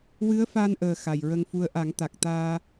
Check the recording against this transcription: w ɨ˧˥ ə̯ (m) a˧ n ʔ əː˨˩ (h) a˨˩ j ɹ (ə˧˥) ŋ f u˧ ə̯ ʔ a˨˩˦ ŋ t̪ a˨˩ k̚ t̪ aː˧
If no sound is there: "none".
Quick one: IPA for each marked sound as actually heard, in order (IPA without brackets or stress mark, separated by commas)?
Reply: f, x, ə˧